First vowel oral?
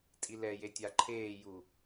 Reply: yes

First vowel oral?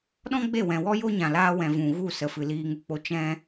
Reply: no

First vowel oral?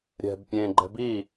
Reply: yes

